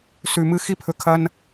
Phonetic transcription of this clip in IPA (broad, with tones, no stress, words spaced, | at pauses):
sʉ˨˩mɨ˦ xi˦pʰɵ˨˩kʰɐ˦n